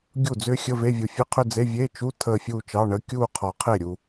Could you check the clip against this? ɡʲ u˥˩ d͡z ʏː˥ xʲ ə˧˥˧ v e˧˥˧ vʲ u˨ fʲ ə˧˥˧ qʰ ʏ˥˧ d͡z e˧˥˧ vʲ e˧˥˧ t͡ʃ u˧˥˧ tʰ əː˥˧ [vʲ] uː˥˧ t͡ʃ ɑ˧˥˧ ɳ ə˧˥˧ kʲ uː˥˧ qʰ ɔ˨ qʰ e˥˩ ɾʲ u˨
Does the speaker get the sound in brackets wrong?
yes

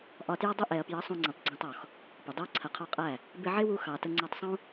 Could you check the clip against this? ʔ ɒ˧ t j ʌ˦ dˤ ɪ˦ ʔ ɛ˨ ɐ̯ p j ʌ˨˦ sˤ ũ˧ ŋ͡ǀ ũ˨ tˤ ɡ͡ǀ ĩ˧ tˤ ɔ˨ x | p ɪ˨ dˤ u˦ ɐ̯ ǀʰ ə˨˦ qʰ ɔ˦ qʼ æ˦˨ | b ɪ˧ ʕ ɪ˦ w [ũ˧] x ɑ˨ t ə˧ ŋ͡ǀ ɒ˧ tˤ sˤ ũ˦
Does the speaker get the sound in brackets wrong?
yes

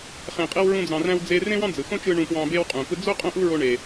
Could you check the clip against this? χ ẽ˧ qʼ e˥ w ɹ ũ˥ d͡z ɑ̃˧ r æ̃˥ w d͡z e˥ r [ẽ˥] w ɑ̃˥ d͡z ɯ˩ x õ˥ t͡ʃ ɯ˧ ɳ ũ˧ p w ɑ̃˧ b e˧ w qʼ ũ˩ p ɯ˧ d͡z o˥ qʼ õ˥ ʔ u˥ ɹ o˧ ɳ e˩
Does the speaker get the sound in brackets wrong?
no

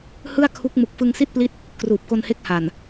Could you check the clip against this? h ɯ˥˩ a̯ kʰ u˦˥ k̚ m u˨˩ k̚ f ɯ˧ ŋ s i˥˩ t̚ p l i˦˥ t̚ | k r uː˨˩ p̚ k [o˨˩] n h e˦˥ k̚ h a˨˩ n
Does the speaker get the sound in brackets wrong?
yes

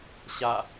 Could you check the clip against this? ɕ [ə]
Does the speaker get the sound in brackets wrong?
yes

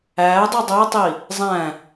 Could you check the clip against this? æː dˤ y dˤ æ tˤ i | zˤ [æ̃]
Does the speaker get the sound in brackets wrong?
no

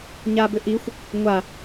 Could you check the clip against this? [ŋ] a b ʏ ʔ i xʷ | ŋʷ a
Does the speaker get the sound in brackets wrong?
yes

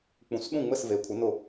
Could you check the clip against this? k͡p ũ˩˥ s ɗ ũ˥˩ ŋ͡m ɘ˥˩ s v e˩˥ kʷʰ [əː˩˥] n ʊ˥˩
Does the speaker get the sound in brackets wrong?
yes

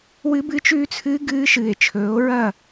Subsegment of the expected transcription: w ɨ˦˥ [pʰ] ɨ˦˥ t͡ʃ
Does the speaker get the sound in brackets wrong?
yes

